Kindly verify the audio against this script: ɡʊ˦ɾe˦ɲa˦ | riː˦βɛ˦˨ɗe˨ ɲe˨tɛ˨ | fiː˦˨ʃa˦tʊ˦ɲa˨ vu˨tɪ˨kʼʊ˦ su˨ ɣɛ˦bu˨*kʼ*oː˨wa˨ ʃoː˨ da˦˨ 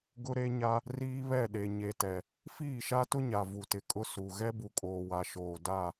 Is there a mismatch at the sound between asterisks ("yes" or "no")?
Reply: no